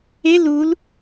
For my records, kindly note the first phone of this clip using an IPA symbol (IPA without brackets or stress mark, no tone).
e